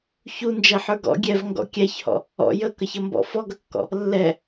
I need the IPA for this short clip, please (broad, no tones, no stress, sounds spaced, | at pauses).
ç u n d͡ʒ ɛ ħ ə˞ ɡ ɔ̰ ɡʲ ɛ v ŋ ɡ ɔ̰ kʲ æ ç h ɔ̰ | ɔ̰ j ə k ʌ ç ʌ m b ɔ̰ f ɔ ɡ ʌ kː ɔ̰ | lː ɛ